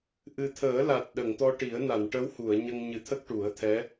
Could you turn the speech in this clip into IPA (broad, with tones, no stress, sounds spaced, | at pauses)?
ʔ ɨ˨˩ t̪ʰ əː˨˩˦ l a˨˩ t̚ ɗ ə˨˩˨ ŋ t̪ ɔ˧ ʈ i˨˩˦ ə̯ n a˨˩˨ n ʈ ə˧˥ w h u˨˩˨ ə̯ ɲ ə˧ ŋ ɲ ɨ˨˩˦ t̪ʰ ə˦˥ k̚ ʈ u˨˩˦ ə̯ t̪ʰ ɛ˧˥